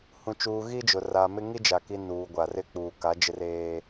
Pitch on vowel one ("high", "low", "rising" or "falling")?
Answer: low